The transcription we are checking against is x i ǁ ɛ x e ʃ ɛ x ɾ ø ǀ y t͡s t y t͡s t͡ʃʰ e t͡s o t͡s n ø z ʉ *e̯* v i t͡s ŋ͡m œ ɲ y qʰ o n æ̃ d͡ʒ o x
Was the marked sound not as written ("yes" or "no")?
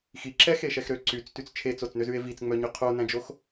no